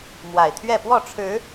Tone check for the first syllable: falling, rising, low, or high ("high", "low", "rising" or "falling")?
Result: low